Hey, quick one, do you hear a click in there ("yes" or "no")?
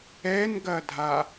no